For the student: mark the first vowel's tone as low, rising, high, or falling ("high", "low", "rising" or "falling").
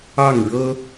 falling